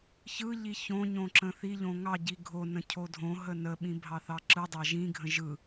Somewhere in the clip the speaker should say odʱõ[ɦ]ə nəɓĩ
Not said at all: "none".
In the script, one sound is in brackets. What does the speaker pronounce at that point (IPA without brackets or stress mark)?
ɦ